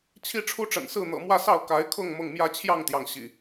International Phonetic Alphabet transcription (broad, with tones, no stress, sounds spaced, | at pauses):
t͡ɕʰ i˦ ʈ͡ʂʰ u˦ ʈ͡ʂ ə̰˨˩ n s ɹ̩˥˨ n̪ ɤ̰˨˩ m w ä˥˨ s ɑ˥˨ ʊ̯ k a˨˦ ɪ̯ kʰ ʊ˥˨ ŋ m ʊ˥˨ ŋ m j ä˦ t͡ɕʰ j ɑ˥˨ ŋ t̪ j ɑ˩ ŋ ɕ ḭ˨˩